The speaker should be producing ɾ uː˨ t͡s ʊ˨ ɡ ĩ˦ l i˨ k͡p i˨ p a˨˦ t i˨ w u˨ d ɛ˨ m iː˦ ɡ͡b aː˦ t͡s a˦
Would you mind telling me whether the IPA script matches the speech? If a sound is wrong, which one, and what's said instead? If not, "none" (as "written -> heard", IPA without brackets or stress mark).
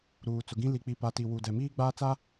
none